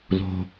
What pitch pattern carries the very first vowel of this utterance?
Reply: low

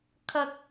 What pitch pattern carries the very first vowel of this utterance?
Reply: low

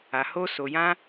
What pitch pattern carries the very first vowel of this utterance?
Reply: low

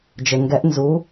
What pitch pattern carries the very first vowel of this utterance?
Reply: low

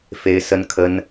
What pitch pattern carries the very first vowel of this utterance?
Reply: high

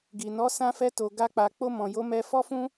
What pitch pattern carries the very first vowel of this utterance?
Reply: low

